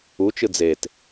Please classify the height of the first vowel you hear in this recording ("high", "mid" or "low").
high